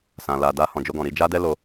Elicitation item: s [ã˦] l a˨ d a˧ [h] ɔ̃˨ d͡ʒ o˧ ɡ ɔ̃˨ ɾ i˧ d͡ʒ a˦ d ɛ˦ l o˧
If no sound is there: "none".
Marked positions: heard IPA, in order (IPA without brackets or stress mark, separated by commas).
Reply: ã˨, h